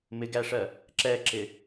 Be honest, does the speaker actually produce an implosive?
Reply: no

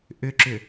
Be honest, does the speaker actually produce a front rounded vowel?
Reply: yes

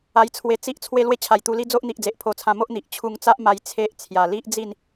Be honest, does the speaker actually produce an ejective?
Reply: no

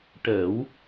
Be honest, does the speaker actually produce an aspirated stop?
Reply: no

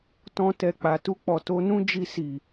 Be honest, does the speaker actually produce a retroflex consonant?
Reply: no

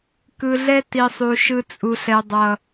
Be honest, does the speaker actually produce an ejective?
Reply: yes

